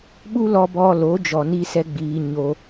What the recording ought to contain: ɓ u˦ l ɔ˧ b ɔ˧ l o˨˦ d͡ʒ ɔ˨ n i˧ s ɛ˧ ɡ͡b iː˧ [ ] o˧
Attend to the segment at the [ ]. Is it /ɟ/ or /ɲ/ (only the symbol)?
ɲ